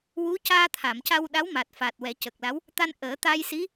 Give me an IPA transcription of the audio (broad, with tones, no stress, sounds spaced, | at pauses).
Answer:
w u˧˥ c aː˧ t̪ʰ a˨˩˨ m c a˧ w ɗ a˧˥ w m a˨˩ t̚ f aː˨˩ t̚ w ɛ˨˩˦ c ə˨˩ k̚ l a˧˥ w | t̪ a˧ n ʔ əː˨˩˦ t̪ a˧ j s i˧˥